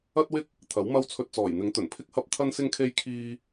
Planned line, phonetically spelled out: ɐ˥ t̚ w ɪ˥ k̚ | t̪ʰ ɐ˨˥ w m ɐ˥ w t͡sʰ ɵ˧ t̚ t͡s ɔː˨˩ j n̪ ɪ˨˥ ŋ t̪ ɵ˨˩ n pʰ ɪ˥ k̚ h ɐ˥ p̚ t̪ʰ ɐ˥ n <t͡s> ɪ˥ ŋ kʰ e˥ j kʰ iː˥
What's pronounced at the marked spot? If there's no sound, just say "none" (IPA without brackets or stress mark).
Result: s